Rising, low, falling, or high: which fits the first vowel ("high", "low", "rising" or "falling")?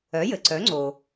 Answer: rising